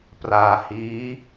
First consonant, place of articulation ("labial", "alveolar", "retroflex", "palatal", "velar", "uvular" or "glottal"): labial